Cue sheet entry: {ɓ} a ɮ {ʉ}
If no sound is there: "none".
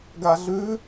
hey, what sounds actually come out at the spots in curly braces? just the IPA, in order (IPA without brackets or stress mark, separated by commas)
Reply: ɡ, ʉ